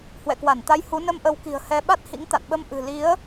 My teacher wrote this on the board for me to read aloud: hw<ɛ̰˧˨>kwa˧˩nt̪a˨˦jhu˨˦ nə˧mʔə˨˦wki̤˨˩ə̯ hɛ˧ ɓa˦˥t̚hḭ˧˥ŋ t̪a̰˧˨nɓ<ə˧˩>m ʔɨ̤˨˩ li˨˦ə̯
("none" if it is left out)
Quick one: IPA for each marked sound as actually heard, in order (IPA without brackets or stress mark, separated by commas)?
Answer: ɛ̰˧˨, ə˧